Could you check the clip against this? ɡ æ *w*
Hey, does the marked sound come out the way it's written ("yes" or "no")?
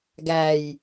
no